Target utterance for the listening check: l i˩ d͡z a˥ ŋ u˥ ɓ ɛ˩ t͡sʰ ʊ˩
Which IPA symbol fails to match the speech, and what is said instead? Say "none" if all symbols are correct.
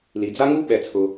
none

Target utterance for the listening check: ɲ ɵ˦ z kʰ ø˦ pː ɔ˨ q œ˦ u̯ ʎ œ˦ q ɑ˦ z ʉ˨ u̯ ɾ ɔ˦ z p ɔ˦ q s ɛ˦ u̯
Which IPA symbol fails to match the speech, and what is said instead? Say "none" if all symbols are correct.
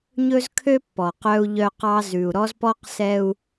none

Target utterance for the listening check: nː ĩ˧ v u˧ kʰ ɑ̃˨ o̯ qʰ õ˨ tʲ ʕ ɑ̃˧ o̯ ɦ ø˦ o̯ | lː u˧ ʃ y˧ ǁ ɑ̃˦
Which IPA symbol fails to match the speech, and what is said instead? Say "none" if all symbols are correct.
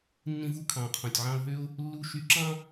none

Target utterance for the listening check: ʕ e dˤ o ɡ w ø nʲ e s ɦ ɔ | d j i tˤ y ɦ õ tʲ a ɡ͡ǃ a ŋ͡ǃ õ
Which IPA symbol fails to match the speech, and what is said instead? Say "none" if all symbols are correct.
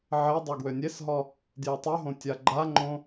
none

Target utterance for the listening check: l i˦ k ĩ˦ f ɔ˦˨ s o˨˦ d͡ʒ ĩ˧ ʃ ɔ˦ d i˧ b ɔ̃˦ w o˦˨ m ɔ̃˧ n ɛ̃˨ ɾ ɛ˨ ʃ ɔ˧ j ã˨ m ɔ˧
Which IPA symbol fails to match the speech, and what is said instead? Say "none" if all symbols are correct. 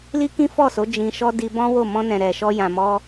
none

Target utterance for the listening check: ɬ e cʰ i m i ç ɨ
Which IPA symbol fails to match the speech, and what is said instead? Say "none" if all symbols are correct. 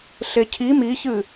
none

